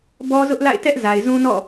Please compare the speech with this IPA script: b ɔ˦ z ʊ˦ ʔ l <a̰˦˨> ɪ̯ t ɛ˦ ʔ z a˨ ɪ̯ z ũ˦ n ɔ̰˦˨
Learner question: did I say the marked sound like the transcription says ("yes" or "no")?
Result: yes